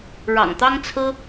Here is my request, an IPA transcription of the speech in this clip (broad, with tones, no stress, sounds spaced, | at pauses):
ɻ ɑ̰˨˩ ŋ t̪ ɑ˥ ŋ t͡sʰ ɹ̩˥